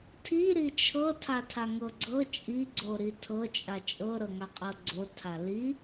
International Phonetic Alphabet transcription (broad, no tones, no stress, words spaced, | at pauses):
tʰi ɾit͡ʃʰɤ tʰatʰaŋɤɡ͡ǀɤ t͡ʃʼiɡ͡ǀoɾi tʰɤt͡ʃʼa t͡ʃʼɤɾɤŋa qʼɤɡ͡ǀo tʰali